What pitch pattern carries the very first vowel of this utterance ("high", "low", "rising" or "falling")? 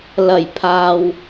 low